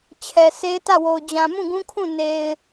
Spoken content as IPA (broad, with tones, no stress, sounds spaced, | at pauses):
t͡ɕʰ ɛ˨ s e˦ ɪ̯ t ä˦˨ w o˨ ʊ̯ d͡ʑ ã˨ m ũ˦˨ ɡ ũ˦ kʰ ũ˦˨ n e˨ ɪ̯